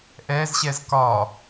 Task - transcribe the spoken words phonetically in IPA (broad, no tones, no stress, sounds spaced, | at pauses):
ʔ ɛ z ɕ ɛ z k ɒ